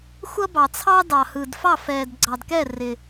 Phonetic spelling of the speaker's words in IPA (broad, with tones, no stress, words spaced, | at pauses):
xʷʌ˥bɑ˨t͡sʰɑ˥ dɑ˨hɯ˨dfɑ˥˨ fɛː˨d ɡ͡ǀɑ˨dkɛ˥˨rɪ˨